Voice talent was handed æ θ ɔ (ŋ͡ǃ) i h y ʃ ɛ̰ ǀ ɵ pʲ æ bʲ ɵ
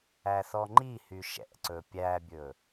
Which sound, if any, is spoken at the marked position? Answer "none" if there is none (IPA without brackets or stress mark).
ŋ͡ǃ